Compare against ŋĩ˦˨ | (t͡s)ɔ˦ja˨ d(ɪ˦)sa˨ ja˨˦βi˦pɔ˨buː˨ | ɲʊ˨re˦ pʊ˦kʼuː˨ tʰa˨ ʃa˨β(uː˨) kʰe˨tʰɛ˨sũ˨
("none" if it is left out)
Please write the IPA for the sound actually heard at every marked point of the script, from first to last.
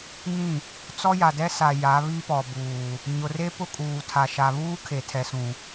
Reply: t͡s, ɛ˦, uː˦

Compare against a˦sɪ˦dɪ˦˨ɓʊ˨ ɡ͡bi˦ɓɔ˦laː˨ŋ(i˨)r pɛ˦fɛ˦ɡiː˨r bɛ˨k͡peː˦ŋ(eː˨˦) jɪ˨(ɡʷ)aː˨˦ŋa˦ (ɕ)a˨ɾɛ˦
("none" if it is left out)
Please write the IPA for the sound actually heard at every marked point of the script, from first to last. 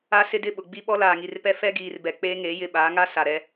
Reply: i˨, eː˨˦, ɓ, s

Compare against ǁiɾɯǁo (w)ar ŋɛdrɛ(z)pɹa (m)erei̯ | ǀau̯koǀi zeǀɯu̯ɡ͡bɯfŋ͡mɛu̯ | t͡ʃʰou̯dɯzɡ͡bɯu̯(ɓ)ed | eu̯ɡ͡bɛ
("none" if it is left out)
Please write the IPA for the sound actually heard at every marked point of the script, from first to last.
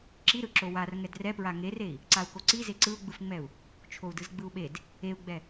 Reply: w, none, ŋ, ɓ

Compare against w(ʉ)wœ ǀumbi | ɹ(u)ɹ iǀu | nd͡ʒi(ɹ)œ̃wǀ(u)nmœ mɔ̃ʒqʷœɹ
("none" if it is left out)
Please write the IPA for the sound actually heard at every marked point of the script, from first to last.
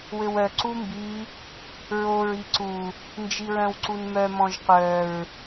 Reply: ø, o, ɹ, u

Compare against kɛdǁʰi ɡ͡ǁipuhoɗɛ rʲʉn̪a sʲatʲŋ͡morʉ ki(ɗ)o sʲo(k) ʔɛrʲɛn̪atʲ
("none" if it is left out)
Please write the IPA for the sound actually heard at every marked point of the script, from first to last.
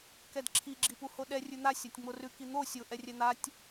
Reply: n̪, none

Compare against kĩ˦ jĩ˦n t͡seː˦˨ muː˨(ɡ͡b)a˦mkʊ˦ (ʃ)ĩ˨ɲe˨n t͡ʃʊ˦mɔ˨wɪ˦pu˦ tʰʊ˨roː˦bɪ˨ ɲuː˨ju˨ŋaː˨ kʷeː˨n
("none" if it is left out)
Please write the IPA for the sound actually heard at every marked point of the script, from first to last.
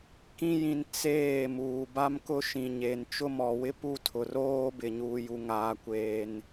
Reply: b, ʃ

